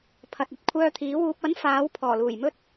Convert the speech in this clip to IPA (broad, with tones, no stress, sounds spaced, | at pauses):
pʰ ɐ˨ t̚ ɐ˧ t̚ kʷʰ œː˧ t̪ʰ iː˨˥ w uː˧ p̚ ɐ˨˥ n f aː˨˥ w pʰ ɔː˨˩ l uː˨˩ j m ɵ˥ t̚